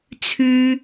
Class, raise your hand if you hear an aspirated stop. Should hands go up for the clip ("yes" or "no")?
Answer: yes